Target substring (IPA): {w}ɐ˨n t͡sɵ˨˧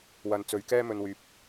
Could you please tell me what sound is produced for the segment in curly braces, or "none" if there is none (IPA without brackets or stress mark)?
w